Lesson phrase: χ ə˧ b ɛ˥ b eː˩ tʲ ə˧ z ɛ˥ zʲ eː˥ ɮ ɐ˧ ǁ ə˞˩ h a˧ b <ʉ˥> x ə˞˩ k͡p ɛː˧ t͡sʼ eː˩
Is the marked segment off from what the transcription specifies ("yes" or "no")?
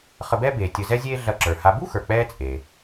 yes